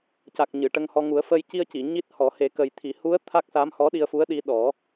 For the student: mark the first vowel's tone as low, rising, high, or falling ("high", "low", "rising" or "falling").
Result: low